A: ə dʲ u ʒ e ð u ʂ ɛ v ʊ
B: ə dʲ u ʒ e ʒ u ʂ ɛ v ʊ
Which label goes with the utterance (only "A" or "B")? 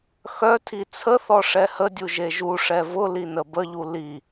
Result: B